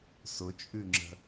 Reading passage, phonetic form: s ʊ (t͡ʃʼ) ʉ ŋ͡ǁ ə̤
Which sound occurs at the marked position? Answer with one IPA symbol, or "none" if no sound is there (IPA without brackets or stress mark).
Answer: t͡ʃʼ